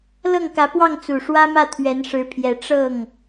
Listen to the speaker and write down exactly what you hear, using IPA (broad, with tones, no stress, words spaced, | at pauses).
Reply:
lɤ˥˩ŋkä˧˥pwɑ˥˩ŋ t͡su˨˩ ʂwä˥mä˥˩ t̪ʰɥɛ˧˥nʂɻ̩˧˥pʰjɛ˨˩ ʈ͡ʂɤ˥˩ŋ